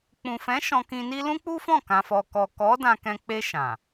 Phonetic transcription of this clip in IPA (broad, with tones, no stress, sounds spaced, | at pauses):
k͡p ũ˨ f ɛ̃˨˦ ʃ ɔ̃˧ k ĩ˧ n i˦ l ũ˦ k͡p u˦ f ɔ̃˦˨ k ã˨ f ɔ˨ k ɔ˨ k ɔ˨˦ d ã˧ k ɛ̃˧ k͡p e˧ ʃ ã˨